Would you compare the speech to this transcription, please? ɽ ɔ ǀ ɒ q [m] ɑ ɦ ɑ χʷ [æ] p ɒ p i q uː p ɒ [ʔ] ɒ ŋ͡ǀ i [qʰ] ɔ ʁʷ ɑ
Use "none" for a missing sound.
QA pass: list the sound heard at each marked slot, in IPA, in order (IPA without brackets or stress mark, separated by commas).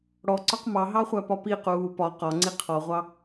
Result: m, æ, q, qʰ